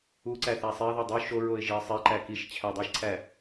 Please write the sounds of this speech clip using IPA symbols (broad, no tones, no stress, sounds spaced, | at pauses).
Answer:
u ǀ æ θ æ sˤ e ə̯ ð ɒ dˤ u ʃ o ɹ o ɪ̯ ʒ i ə̯ sˤ e ǃ æ k i ʃ t͡ɕʰ æ dˤ i ʃ ǀʰ æ